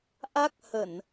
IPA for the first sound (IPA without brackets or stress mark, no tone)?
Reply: ʔ